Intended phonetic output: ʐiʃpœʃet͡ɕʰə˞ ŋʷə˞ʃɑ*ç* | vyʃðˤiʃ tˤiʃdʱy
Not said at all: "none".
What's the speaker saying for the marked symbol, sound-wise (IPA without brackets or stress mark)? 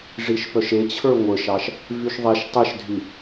ʃ